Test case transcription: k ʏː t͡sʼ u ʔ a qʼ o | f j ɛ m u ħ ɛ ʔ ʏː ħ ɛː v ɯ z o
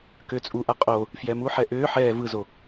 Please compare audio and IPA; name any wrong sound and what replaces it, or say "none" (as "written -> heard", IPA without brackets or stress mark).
none